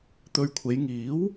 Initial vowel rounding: rounded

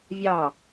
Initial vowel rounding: unrounded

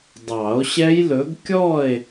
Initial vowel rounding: unrounded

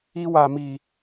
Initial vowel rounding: unrounded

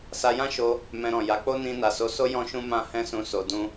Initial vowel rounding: unrounded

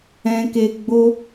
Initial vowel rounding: unrounded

